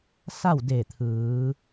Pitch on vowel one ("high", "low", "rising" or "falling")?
falling